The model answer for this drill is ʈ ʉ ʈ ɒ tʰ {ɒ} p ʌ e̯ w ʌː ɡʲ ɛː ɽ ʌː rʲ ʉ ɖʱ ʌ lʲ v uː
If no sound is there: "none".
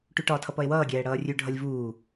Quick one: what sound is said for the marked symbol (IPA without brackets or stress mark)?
ʌ